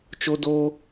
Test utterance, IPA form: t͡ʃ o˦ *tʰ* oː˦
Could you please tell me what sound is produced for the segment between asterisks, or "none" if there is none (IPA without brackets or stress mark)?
d